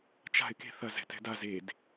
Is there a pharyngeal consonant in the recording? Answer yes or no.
no